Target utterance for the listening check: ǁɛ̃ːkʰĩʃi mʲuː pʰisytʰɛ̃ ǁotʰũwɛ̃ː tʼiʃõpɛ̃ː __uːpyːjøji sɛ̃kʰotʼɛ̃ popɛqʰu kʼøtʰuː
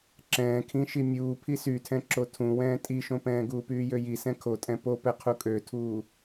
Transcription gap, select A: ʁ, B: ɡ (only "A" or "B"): B